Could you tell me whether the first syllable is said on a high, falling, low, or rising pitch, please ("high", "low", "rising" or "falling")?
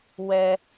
high